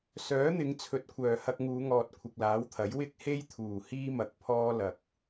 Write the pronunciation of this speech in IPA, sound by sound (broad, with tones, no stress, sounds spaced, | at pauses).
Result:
s œː˨˥ n̪ ɪ˨˧ ŋ t͡sʰ ɵ˨ t̚ kʷʰ œː˨˩ h ɐ˧ k̚ ŋ uː˨˧ ŋ ɔː˨ t̚ kʷʰ ɪ˨ k̚ l aː˨˥ w t̪ʰ ɐ˨˥ j w ɪ˥ k̚ h e˥ j t̪ʰ uː˨˩ h iː˥ m ɐ˧ k̚ pʰ ɔː˥ l ɐ˨ k̚